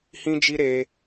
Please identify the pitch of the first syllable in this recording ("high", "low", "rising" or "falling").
high